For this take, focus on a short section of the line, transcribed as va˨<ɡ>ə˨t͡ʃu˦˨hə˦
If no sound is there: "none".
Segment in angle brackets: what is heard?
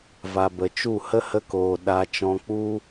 b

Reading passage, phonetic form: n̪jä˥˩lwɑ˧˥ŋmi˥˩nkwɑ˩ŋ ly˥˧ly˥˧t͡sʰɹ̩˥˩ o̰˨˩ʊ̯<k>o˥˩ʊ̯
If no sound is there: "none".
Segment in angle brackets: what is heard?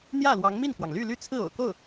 k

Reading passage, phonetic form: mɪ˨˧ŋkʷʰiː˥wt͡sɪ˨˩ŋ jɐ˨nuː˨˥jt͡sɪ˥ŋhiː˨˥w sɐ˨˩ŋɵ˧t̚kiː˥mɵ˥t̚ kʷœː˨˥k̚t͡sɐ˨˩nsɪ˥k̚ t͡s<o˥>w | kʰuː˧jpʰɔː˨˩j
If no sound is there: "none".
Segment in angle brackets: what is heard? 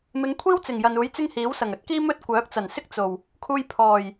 o˨˩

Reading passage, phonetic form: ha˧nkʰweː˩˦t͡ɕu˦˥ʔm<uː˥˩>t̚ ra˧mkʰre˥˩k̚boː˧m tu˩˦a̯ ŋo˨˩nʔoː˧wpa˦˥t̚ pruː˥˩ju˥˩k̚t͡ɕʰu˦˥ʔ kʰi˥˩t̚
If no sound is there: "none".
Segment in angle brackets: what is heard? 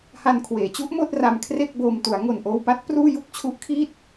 oː˥˩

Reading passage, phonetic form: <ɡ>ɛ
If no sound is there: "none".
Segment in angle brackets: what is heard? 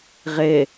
ʁ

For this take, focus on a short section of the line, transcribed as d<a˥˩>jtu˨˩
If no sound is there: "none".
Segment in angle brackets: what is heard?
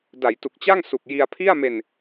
a˩˦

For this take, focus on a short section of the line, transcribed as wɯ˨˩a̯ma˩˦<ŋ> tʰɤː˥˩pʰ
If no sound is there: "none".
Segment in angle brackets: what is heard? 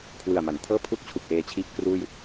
n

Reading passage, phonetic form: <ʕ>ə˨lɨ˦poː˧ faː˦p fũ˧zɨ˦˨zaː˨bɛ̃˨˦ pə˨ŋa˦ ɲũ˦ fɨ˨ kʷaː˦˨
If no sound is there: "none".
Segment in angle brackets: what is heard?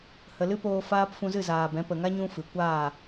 h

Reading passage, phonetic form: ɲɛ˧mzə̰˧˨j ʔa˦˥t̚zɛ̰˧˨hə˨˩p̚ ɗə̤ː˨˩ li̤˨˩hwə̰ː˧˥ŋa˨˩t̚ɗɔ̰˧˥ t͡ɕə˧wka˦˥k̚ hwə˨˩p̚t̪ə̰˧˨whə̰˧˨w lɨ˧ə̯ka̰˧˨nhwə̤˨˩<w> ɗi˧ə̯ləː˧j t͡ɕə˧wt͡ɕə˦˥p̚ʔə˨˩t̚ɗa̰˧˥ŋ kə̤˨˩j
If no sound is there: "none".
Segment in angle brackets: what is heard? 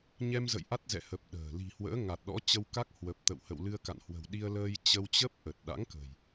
w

